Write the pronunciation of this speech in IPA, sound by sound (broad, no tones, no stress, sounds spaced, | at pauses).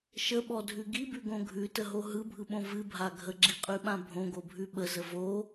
ʃ ə ɓ ɔ dʱ ʉ ɡ i b ʉ ɡ õ ɡʱ ʉ t ə ɦ o ɦ ɯ bʱ ɯ ɓ õ v ɨ bʱ a ɡʱ ə ɡ͡ǁ i qʼ ʉ ɓ ã bʱ õ ɡ o bʱ ʉ ɓ ə z ə v o